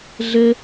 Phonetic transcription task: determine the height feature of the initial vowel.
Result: mid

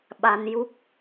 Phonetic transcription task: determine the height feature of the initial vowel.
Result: low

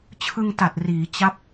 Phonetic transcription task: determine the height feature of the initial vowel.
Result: high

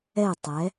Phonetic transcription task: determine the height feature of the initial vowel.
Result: mid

